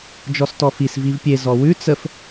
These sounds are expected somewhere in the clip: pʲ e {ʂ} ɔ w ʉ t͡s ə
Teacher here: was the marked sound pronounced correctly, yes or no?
no